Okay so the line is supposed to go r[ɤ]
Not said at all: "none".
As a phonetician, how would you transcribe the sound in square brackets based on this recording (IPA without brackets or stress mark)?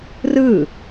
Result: ɯ